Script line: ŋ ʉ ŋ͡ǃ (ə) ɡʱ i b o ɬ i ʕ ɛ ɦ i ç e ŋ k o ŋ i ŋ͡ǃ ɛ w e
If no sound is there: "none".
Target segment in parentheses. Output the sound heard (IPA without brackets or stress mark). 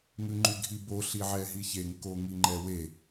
ʉ